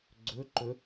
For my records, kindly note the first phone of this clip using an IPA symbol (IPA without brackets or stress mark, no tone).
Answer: ɡ͡ǀ